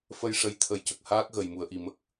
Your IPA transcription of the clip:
f ə˧ j ʂ ə˧˥ j t̪ʰ ə˨˩˦ j c ə˨˩ k̚ h aː˦˥ k̚ ɣ ə˨˩ j m u˨˩˨ ə̯ ʔ i˨˩ m ə˦˥ k̚

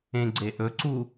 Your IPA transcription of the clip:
ẽ ɡ͡ǀ e ʔ ɵ ǀ u

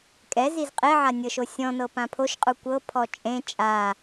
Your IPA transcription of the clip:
kʼ ɛ z i z qʼ e ʕ a nʲ ɤ ʃ o sʲ ɔ̃ n ɤ p ã pʰ o ʃ qʼ u kʷ ɤ pʰ ɔ t͡ʃʼ ẽ t͡ʃʼ a

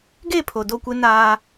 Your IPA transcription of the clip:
ɡ e˦˨ pʰ o˨ d o˦˨ kʷ e˦ n aː˦

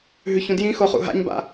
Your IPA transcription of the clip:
ɦ ʉ ç ũ d j ĩ x o χ ṵ ɦ a̰ ɲ b a̰

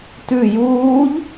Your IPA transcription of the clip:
t ʉ j uː ʎ

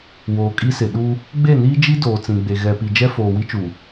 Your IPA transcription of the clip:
w oː˨ kʼ i˦ s ɪ˨ ɗ u˦ | ɡ͡b e˦˨ n iː˦ d͡ʒ i˦ d oː˨ t͡s ĩ˨ ɡ͡b e˨ ɣ ɛ˨ p i˨ d͡ʒ ɛ˦ f oː˨ w i˦ t͡ʃ u˨

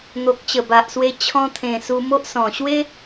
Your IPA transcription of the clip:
n̪ o˨ k̚ t͡ɕ ə˨˩ b a˨ ʔ s w e˧ t͡ɕʰ ɔ̃˧ t̪ʰ ẽ˨˩ s u˧ m o˦ ʔ s ɔ̃˨˩ ɕ w e˧

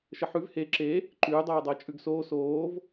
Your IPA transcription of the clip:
ʃ ə ħ ʉ v h e ǁ e | ǃ ʉː dˤ oː dˤ əː t͡ʃʼ ʉ ɡ s oː s oː v

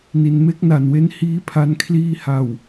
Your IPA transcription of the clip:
n i˩˦ n m e˦˥ k̚ n a˨˩ n w e˦˥ n h iː˦˥ pʰ a˧ n kʰ l iː˧ h a˨˩ w

